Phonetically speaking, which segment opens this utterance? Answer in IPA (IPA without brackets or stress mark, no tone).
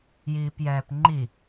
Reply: j